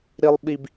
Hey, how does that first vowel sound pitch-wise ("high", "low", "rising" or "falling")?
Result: high